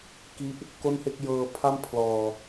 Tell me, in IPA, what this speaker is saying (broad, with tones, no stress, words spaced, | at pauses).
ki˦˥ʔ | ko˥˩nhe˥˩k̚ jɤː˧ pʰa˥˩m pʰlɔː˧